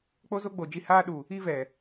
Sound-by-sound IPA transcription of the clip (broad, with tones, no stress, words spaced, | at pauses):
k͡po˦zo˦ɡ͡bo˨ d͡ʒi˧haː˦ ɗu˨ | i˦vɛ˨